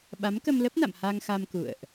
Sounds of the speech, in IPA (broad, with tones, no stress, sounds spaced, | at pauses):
ɓ a˨˦ m k ə˧ m l ə˦˥ p̚ n a̰˧˨ m h a˧ ŋ x a˧ m k ṵ˧˨ ə̯ ʔ